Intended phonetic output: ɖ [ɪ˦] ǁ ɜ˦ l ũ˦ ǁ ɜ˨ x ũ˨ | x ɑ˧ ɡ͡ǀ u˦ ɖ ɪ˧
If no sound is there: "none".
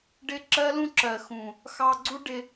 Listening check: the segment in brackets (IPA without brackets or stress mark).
ɪ˦